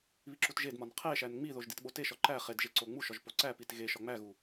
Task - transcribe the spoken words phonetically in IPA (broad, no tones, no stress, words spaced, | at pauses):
βiǁutʒedmɒn qʰeʃæn ŋ͡miðoʒ ditɓoteʃɒ ǃæ χedʒe ǀoŋ͡muʃɒʒ poǀæpit ɣeʃɒ ŋ͡mæɣu